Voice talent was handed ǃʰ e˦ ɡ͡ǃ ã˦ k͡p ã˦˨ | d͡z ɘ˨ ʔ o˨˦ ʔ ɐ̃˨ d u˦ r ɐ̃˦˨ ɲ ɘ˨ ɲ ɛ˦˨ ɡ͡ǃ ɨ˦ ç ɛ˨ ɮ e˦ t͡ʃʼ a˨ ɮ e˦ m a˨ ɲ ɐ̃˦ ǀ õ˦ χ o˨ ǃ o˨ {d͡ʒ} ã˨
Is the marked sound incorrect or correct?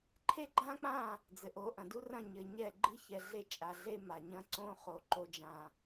correct